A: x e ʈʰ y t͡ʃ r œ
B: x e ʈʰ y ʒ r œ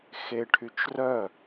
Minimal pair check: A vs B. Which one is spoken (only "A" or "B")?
A